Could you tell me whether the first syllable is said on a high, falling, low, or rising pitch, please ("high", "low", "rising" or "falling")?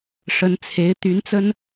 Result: rising